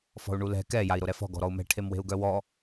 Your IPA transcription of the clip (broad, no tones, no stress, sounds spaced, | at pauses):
f ɔ̤ u̯ ɳ u l ɛ̤ k ɛ j a i̯ ɾ o ɾ ɛ f ɔ̤ ɡ ɔ̤ ɾ ɔ u̯ m ɛ̤ ʈʰ e m w e̤ u̯ ɡ œ w ɔ